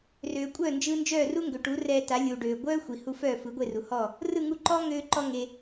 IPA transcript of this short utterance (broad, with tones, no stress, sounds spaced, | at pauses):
r øː˩ kʷʼ œː˥˩ n d͡ʒ ɯː˧ n d͡ʒ œː˥˩ r u˥ ŋ ɡ ø˩ ʈ u˩˥ r ɛ˧ t a˩˥ lʲ u˩ ɖ øː˩ ɡʷ œː˥ xʷ i˩ h u˧ f œː˥˩ f ɯ˩˥ ɡʷ e˥˩ r u˩ h ɔ˥˩ | r ɯ˥˩ ŋ u˧ ǃ ɔː˥ ŋ øː˧ ǃ ɔ˧ ŋ e˩